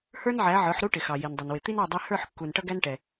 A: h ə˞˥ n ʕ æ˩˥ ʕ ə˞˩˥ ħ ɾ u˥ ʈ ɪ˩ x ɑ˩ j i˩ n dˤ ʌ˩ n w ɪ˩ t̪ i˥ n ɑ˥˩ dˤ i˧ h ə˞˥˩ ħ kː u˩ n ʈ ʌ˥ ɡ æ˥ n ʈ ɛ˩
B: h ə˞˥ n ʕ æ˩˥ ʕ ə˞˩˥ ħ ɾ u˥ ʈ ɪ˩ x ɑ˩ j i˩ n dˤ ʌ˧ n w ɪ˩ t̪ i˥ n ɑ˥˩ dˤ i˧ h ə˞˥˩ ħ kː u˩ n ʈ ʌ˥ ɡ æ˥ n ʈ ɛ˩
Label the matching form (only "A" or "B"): A